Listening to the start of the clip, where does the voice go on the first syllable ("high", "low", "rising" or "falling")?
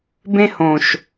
high